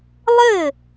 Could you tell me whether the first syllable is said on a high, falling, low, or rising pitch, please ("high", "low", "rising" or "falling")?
falling